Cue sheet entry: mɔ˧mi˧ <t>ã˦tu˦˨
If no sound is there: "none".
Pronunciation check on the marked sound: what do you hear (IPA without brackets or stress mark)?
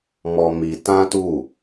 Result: t